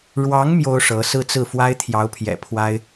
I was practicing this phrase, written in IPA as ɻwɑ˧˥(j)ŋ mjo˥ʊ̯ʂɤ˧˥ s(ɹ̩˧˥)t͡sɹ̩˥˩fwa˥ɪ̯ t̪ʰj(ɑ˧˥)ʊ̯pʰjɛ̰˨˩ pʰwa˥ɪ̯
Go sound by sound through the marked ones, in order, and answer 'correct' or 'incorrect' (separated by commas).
incorrect, incorrect, correct